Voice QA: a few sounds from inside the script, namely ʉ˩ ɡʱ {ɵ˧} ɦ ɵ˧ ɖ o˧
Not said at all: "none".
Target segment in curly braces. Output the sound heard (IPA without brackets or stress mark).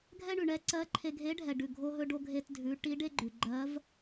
o˧